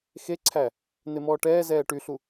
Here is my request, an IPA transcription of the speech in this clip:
xeǀʰæ | n̪emɔːʈɛːzɛː ʈyɬu

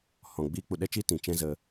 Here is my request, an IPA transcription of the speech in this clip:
hɔ̃˨ ɡ͡biː˦k͡pu˧ ɗɛ˦t͡ʃiː˦ tĩ˨ t͡ʃɛ̃˦ zə˧

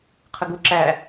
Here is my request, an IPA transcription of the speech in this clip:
qʰəɡu ǁæ

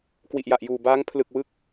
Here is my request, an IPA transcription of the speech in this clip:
kwi˨˩ʔja˨˩ʔjuː˨˩ baː˦˥ŋpʰlɯ˨˩k̚wɯ˦˥k̚

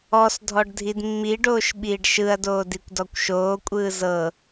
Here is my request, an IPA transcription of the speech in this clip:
ɔs dʱɔɖdʱidmːiɖoːʃ ɓiːɖʃɯɐ̯doː dikʷdɔkʷʃoːkʷʼɯː zɤ

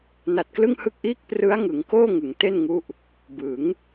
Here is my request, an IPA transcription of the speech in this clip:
na˨˩t̚klɯ˥˩ŋhɯ˥˩k̚ʔiː˥˩k̚ prɯ˦˥a̯ ŋɯ˩˦ŋkoː˥˩ ŋɯ˩˦ŋte˥˩nŋu˦˥ʔ | bɯ˩˦ŋ

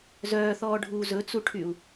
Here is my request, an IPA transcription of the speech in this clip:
zœːθɔːɖʱuː zɵt͡suʈʰyu̯

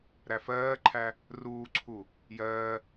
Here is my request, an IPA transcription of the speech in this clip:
ɾæfɜːǃʰæ | ruːǀʰu | jɜː

